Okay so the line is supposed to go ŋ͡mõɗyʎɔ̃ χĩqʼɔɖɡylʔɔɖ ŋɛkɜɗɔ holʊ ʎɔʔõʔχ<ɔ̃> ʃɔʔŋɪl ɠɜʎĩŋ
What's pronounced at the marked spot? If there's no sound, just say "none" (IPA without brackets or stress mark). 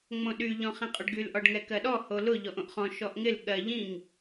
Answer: ɔ̃